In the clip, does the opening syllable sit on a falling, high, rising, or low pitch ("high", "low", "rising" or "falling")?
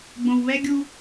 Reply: low